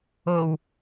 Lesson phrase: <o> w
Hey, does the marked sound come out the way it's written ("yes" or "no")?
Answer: yes